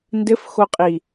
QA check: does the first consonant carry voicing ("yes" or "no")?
yes